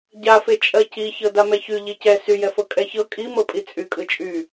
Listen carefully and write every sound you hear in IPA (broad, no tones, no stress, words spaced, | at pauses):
ɟafe t͡ʃʼɜci çɤdamɛçy ʎicɛ syjɛfɤ kʼɛçɤ kʼi mɤpʼit͡sʼy kʼɯt͡ʃʼy